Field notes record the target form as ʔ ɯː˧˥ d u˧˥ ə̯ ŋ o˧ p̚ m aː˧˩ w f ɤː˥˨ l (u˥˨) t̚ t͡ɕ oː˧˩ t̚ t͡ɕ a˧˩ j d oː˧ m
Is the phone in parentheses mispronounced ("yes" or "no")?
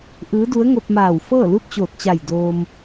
no